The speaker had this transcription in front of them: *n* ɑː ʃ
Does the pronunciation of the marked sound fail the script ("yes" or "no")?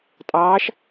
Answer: yes